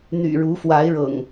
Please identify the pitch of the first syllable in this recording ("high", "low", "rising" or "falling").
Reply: low